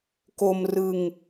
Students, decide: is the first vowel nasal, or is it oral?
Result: oral